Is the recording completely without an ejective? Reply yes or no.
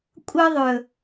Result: no